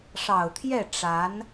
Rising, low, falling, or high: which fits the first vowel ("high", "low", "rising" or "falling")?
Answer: low